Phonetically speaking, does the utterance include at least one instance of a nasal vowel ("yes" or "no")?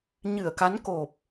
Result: no